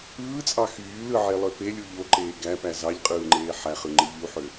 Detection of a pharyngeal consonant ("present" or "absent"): present